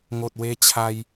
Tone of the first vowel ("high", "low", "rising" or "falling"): low